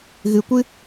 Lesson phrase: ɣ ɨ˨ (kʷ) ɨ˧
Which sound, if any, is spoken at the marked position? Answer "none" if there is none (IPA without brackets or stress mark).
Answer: kʷ